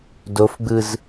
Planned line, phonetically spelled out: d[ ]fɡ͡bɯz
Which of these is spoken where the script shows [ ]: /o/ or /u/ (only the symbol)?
o